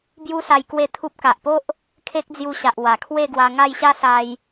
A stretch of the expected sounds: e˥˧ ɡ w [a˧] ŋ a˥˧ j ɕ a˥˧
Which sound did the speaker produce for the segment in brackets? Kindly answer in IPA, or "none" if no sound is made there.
a˧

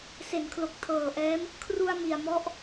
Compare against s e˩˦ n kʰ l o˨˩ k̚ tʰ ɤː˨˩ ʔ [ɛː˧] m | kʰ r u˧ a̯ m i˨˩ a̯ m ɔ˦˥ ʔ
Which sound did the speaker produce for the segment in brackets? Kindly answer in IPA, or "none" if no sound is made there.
ɛː˦˥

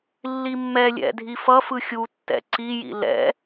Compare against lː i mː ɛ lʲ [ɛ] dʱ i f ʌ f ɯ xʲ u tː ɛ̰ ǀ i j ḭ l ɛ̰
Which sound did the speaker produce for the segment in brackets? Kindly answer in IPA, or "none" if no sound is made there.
ɛ̰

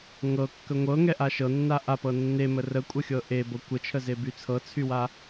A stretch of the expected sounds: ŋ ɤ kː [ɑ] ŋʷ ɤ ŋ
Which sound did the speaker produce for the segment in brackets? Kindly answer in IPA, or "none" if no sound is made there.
ə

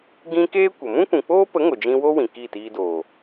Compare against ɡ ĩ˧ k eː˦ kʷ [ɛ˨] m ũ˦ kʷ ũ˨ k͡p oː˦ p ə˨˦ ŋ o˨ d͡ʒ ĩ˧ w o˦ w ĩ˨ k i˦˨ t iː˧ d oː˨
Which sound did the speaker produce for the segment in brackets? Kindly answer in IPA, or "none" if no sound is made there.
ə˨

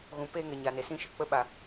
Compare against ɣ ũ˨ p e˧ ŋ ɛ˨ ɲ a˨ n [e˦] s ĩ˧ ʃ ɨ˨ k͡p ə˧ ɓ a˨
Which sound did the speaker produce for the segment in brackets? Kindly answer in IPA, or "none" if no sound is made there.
e˨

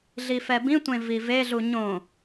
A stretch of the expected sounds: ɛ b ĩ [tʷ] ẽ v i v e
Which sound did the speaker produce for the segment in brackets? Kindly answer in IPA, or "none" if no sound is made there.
tʷ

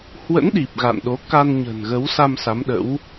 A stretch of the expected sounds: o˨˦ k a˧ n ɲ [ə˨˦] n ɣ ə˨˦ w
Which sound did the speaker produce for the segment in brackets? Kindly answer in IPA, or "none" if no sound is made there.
ə̤˨˩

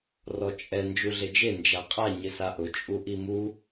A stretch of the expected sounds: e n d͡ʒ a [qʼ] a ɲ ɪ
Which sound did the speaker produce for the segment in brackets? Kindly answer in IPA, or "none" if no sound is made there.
qʼ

